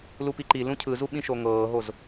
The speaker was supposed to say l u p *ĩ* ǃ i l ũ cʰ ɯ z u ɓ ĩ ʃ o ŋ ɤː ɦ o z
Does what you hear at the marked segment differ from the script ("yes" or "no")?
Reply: yes